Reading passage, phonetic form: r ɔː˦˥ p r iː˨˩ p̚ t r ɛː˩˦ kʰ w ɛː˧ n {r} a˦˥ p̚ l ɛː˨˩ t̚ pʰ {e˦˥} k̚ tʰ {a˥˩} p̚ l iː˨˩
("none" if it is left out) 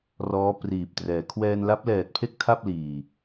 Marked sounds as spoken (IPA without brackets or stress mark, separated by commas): l, e˥˩, a˥˩